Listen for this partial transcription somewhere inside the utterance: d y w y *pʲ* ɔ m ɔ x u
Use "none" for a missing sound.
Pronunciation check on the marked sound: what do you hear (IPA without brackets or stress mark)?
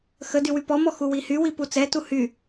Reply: p